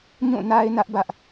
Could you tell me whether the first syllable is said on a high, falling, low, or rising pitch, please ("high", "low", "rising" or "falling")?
falling